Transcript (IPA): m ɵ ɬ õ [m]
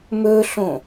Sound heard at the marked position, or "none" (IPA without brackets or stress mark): none